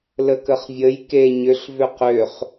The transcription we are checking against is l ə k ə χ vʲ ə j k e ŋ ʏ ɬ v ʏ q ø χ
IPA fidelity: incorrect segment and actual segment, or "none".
ŋ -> ɲ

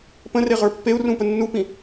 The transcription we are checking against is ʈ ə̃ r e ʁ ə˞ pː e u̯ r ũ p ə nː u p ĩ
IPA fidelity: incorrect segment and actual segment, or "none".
ʈ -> p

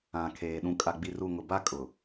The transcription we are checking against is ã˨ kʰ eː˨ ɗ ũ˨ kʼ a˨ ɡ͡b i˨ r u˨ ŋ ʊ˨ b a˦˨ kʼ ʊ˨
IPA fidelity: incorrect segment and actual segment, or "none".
none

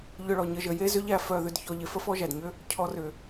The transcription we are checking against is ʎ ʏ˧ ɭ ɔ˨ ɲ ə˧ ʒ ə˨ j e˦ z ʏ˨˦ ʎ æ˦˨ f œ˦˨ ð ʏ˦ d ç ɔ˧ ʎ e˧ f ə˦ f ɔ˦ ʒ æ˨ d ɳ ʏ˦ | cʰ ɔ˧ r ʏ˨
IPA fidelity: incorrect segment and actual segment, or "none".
ɳ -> ɲ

